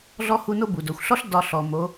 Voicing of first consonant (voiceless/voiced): voiced